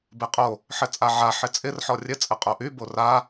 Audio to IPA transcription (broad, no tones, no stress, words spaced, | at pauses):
beqʼo | ħɘt͡sʼaʕa ħɪt͡sʼɪr ħɔrʲɘ t͡sʼɘqʼoʔy bora